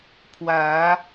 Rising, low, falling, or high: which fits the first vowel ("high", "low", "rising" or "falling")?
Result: rising